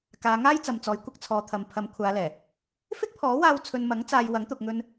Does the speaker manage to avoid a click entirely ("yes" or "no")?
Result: yes